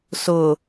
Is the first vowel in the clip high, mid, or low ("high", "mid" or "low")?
high